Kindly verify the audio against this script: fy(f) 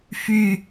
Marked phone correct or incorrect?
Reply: incorrect